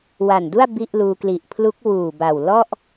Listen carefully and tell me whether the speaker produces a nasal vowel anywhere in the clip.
no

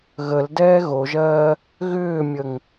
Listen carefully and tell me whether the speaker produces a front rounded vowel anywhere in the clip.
yes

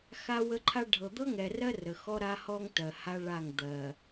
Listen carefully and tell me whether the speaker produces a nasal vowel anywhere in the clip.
no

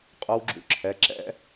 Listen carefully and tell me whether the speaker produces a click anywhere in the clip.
yes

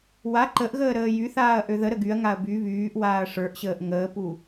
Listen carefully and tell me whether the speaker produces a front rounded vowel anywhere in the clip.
yes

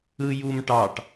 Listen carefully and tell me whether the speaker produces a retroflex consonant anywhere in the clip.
yes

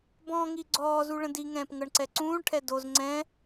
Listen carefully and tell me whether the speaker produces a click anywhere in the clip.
yes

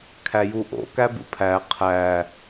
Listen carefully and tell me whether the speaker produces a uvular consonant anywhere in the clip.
yes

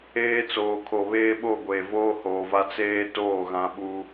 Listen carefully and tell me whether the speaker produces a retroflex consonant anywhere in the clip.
no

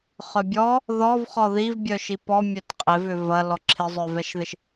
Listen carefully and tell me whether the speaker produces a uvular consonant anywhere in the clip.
yes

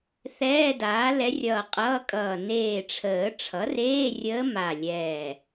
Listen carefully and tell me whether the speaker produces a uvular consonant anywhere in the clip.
yes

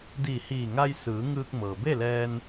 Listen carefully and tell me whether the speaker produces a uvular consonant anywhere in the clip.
no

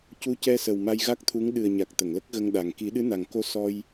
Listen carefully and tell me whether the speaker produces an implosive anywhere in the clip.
yes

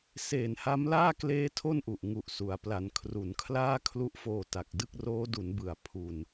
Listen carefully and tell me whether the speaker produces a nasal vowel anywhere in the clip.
no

